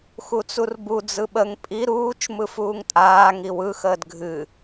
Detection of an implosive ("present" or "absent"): present